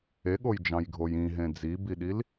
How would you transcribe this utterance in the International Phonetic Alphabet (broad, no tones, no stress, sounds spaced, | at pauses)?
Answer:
e ɠ o j d͡ʒ ɑ̃ j ɡʱ o j ĩ ɦ ẽ d͡z i b i ɗ i l